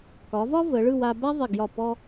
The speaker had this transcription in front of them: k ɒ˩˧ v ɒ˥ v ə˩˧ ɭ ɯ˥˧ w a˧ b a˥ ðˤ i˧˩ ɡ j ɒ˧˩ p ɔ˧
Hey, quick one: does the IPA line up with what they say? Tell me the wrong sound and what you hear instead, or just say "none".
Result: none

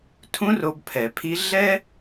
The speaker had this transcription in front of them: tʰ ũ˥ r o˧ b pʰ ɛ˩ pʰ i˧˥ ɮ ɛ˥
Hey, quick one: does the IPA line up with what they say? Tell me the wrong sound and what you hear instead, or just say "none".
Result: none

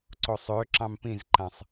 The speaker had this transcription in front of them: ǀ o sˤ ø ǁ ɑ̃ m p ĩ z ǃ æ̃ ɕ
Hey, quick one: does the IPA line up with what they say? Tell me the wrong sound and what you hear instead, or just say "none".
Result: ɕ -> sˤ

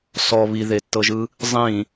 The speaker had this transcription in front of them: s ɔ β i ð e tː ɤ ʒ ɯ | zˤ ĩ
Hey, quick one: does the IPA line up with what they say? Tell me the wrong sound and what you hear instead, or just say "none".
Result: none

